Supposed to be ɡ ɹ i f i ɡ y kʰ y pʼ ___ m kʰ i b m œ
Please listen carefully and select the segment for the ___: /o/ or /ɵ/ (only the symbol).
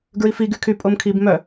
o